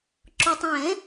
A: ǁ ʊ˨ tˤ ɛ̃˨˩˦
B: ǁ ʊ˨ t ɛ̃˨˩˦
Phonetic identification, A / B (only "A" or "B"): A